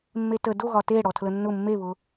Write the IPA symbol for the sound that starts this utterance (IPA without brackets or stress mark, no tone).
mː